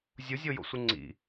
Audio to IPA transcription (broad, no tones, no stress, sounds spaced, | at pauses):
zʲ u zʲ o j o̰ sʷ ɨ ŋ͡ǀ ḭ